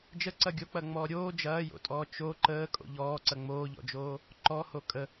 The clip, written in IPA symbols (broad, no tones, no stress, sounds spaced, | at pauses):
d͡ʒ ə ǀ ɐ ɡʲ o k͡p ɐ ŋ͡m ɔː ɾʲ oː d͡ʒ ɐː j o̰ tʼ ɔː t͡ʃ o ǃ əː kʼ o̰ ʎ ɔː ǀ ɐ ŋ͡m oː ʎ ɔ̰ d͡ʒ oː | ǃ ɔ h o kʼ ə